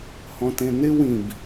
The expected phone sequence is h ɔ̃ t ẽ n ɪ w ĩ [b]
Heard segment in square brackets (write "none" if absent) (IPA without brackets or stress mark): b